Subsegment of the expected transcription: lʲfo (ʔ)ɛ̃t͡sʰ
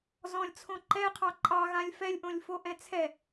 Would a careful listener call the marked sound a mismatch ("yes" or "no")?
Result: no